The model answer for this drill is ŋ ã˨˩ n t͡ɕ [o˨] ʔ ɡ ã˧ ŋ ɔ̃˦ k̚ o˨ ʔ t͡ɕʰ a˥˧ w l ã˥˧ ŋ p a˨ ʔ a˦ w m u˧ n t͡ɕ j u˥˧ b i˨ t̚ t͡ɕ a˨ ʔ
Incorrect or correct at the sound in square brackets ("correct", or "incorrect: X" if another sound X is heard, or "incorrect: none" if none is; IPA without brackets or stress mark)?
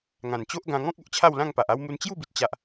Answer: incorrect: o˦